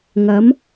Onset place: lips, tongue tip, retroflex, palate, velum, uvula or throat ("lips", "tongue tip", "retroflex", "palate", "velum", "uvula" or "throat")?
velum